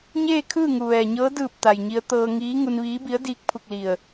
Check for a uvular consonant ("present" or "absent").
absent